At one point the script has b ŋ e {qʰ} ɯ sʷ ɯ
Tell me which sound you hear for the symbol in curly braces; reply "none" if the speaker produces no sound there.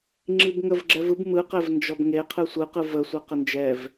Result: qʰ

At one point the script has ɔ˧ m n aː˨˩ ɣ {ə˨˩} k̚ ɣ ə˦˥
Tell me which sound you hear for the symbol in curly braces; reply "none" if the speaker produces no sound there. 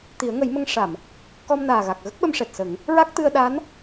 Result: a˨˩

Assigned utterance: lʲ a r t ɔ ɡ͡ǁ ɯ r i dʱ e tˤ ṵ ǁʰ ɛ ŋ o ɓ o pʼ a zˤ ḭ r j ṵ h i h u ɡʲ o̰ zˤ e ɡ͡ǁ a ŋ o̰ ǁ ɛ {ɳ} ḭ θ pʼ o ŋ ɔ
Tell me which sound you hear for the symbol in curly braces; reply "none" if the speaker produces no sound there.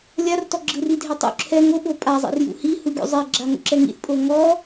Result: ŋ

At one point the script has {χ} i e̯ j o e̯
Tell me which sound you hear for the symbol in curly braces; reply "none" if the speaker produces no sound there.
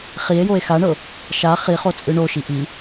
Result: χ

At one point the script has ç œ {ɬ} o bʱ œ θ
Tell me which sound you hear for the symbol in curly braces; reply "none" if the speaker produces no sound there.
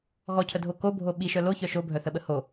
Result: ʃ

